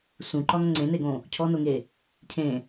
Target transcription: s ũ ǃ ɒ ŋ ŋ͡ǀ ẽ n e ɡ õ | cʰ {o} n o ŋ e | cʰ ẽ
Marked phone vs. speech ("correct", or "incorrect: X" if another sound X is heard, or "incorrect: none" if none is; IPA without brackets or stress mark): incorrect: ɔ